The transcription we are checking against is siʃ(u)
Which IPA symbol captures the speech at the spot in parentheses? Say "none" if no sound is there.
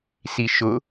ʊ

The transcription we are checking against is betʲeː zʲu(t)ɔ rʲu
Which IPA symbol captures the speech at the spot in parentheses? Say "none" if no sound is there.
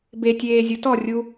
t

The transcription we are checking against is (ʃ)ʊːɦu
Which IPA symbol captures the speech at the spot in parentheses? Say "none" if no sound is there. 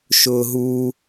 ʃ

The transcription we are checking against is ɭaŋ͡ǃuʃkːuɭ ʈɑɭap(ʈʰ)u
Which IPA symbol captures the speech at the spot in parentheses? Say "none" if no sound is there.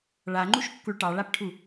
ʈʰ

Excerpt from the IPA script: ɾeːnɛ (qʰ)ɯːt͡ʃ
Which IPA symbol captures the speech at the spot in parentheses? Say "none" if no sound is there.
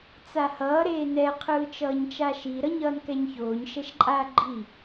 qʰ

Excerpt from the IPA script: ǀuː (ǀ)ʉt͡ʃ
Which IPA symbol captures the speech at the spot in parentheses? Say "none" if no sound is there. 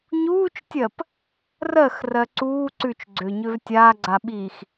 ǀ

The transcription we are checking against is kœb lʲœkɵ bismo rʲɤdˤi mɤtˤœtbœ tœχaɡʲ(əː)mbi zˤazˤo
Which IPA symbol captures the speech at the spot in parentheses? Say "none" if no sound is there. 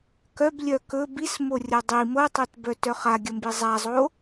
ə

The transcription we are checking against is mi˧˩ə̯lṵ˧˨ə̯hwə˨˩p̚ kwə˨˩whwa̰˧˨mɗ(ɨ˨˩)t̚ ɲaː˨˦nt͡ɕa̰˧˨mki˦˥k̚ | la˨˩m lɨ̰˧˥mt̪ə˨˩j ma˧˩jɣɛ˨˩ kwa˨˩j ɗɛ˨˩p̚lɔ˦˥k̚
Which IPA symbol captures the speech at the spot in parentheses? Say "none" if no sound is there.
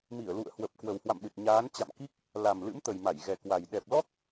ɨ˨˩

